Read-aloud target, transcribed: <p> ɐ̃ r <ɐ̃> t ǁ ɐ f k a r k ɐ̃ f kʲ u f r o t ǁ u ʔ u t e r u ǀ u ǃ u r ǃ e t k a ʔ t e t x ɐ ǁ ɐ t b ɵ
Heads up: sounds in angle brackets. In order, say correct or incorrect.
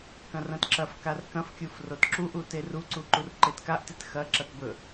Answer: incorrect: k, correct

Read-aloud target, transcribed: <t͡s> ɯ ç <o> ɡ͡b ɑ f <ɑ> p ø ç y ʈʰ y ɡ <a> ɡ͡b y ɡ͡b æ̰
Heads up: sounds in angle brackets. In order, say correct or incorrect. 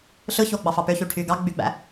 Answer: incorrect: ɬ, correct, correct, incorrect: ɑ

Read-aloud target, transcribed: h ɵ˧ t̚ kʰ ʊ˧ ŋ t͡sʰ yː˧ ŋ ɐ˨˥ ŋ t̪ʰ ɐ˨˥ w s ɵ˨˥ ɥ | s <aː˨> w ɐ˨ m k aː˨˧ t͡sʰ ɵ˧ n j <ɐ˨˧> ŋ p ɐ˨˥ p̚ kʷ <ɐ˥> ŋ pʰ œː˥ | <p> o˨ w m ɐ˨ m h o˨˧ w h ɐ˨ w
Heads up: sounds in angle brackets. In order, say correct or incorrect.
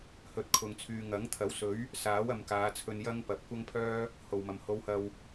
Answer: incorrect: aː˨˥, incorrect: ɐ˥, correct, incorrect: h

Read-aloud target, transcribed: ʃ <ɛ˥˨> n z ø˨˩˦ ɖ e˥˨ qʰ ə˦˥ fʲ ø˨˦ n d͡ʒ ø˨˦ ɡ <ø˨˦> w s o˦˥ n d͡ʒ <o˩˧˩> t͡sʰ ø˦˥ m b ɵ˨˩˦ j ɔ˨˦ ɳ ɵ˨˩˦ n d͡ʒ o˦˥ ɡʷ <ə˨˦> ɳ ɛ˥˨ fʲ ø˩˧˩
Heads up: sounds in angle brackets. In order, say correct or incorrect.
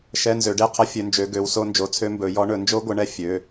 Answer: incorrect: ɛ˧˥˧, correct, incorrect: o˨˦, correct

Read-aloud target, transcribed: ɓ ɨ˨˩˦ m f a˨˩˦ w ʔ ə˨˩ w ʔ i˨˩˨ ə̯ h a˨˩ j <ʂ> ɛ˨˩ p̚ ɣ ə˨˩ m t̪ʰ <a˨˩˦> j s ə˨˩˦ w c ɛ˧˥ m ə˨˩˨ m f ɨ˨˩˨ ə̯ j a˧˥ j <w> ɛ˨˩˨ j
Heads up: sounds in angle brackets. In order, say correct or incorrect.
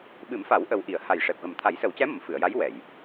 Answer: correct, correct, correct

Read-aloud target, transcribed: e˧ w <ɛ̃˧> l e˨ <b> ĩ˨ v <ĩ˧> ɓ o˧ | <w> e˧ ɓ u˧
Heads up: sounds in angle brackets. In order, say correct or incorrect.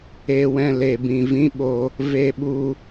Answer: correct, correct, incorrect: ĩ˦, incorrect: v

